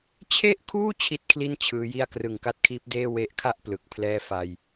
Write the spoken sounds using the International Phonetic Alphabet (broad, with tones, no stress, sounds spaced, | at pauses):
t͡ɕʰ e˥˩ ʔ kʰ uː˥˩ t͡ɕʰ i˥˩ t̚ kʰ l i˥˩ n t͡ɕʰ ɯː˦˥ j i˥˩ a̯ k r ɯ˨˩ ŋ k a˦˥ t̚ kʰ iː˦˥ p̚ d eː˥˩ w e˦˥ ʔ kʰ a˥˩ ʔ p l ɯ˨˩ k̚ pʰ l ɛː˥˩ f a˧ j